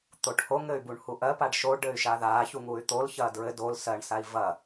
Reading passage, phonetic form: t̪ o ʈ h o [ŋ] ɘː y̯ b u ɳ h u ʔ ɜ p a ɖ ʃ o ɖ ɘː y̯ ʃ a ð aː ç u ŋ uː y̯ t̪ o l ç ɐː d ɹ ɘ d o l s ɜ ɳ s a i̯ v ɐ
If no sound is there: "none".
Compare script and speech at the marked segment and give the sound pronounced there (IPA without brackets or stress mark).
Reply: ŋ